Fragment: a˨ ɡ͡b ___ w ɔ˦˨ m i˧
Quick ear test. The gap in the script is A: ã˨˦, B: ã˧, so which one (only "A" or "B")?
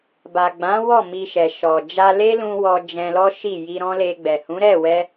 A